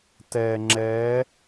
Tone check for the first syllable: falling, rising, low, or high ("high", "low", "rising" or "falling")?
low